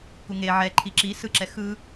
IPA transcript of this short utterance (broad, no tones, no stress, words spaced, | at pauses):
kuŋe ʕɛ ǃʰiǁi sɯǁɛ xɯ